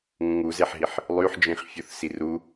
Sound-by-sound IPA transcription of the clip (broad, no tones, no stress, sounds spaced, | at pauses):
ŋ ũ ŋ u z e ħ ɦ i ħ | lˠ y ħ d͡ʒ ĩ χ fʲ u θ s i r u